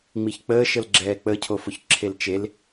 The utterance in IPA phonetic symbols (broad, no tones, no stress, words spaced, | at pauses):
ŋ͡miçk͡pəːʃəl ɡ͡ǁɛːk͡pəcʰofʊç ǁʰelt͡ʃel